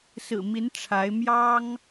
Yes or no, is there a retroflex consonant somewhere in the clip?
yes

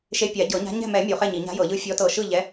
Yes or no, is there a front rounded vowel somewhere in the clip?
no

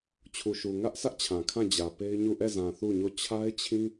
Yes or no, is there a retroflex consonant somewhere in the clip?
no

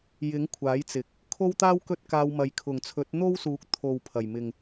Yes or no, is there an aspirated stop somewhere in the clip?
yes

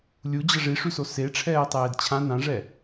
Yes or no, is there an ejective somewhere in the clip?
no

